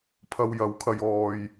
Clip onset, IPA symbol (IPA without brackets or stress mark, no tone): pʰ